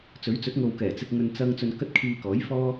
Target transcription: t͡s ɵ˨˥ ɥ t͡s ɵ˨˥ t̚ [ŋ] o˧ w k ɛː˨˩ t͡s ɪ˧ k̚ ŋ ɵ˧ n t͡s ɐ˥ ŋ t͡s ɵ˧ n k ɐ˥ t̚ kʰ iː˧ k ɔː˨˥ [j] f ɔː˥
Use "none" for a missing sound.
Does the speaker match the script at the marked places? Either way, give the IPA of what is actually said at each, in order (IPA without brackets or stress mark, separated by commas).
ŋ, j